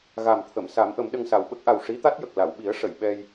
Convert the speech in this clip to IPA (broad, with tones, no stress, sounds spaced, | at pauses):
ɣ a˨˩ m t̪ʰ ə˨˩˨ m s a˨˩˦ m ʔ ə˨˩˦ m ɗ ə˧ ŋ s a˨˩ w ɓ ə˦˥ k̚ ʔ a˨˩ w ʂ i˧˥ t̪ a˦˥ t̚ j ə˨˩ k̚ l a˨˩˨ w ɓ i˨˩˦ ə̯ ʂ ə˨˩˨ j ɓ ɛ˧ j